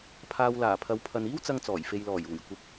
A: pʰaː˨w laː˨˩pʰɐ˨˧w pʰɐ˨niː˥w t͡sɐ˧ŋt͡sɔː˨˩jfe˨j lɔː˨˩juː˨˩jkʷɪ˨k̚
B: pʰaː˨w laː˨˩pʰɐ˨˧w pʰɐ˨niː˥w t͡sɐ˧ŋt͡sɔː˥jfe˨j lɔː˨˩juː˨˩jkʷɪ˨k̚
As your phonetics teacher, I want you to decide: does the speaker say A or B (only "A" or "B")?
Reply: A